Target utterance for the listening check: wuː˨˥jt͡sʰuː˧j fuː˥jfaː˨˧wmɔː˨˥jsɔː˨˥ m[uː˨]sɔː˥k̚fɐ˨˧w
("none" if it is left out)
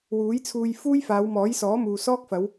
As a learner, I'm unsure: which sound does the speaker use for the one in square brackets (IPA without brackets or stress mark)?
uː˨